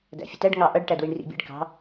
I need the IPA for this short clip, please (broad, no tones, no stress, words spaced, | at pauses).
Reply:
dæ̰fʲətæɖ ŋɑʔʌɖ ʈædwiɳrḭbʲɛ̰ɖ kɑ̤